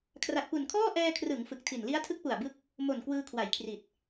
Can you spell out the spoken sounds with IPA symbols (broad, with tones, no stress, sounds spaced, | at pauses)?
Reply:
kʰ r a˨˩ t̚ p u˨˩ n kʰ ɔː˥˩ ʔ ɛː˧ kʰ r ɯ˩˦ ŋ f ɯ˨˩ k̚ tʰ i˨˩ n l i˦˥ a̯ tʰ ɯ˦˥ k̚ p u˨˩ a̯ b ɯ˦˥ k̚ | m o˨˩ n k w ɯː˧ kʰ w a˩˦ j kʰ r i˨˩ t̚